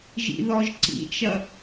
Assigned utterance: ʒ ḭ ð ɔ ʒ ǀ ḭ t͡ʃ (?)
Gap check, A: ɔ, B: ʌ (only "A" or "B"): B